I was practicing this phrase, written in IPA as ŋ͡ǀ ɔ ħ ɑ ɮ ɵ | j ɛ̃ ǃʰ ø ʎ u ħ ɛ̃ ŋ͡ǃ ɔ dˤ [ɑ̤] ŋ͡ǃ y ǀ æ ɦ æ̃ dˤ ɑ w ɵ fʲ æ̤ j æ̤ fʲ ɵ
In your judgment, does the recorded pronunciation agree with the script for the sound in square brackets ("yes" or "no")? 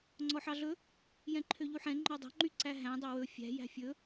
yes